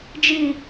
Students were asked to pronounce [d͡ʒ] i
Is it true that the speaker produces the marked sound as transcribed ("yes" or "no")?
yes